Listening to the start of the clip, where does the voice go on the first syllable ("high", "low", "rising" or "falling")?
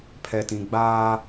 low